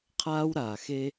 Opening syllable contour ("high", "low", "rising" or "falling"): high